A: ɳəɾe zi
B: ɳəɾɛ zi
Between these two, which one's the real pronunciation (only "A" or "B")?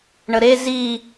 A